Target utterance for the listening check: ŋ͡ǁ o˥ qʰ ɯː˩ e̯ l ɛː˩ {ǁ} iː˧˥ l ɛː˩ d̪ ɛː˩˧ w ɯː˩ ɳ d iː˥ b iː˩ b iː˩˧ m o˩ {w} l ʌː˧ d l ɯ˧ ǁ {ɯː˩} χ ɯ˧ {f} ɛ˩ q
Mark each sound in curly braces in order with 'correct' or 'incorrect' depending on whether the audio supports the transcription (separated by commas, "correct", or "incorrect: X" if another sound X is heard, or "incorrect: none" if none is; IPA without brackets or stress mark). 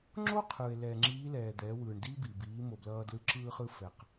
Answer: incorrect: ŋ͡ǁ, incorrect: b, incorrect: ɯː˧, correct